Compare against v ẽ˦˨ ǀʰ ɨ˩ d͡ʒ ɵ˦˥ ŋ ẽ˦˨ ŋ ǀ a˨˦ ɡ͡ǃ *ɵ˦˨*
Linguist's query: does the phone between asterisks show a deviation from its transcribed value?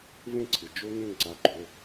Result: yes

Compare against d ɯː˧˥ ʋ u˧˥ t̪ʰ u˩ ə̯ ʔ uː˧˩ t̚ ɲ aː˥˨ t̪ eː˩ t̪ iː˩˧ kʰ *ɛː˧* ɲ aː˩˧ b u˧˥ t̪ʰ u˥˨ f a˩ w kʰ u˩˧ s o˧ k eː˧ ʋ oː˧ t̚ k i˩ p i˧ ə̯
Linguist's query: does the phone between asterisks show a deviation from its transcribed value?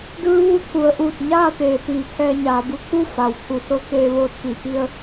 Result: no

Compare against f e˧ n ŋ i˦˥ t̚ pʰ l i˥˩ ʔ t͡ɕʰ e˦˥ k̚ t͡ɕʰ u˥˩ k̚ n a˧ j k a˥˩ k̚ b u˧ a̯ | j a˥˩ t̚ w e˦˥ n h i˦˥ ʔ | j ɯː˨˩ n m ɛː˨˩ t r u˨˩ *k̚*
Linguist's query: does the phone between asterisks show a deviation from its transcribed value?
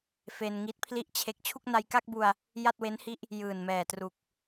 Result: no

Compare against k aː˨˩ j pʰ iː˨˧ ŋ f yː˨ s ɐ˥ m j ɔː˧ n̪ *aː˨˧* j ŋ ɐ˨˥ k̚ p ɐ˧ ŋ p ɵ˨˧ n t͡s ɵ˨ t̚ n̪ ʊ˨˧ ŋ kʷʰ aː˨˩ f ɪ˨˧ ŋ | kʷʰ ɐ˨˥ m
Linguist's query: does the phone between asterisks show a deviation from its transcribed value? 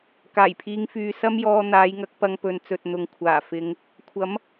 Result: no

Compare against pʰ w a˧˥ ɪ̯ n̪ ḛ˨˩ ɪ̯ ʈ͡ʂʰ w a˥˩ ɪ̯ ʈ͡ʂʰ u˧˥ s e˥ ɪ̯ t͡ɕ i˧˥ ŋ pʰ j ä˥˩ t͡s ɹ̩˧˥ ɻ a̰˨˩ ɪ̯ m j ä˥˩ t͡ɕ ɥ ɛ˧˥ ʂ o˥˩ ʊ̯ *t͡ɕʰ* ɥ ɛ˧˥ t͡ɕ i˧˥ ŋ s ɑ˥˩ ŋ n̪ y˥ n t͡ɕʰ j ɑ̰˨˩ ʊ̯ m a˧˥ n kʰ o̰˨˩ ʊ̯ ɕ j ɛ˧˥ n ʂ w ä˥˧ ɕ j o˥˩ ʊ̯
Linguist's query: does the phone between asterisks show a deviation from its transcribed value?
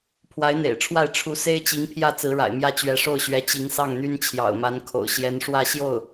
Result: yes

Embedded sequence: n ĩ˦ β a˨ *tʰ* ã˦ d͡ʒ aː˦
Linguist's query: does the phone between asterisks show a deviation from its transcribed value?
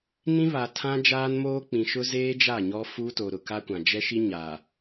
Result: no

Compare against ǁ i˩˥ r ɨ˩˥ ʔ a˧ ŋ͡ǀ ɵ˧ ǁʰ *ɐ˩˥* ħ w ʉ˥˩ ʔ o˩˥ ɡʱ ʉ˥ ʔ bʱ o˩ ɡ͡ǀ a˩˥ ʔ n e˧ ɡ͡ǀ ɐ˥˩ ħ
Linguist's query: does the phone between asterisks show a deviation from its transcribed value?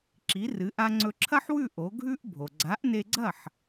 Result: yes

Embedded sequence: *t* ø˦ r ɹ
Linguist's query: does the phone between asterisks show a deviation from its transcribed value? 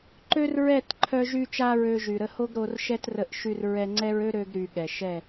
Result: yes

